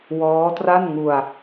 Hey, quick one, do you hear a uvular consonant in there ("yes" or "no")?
no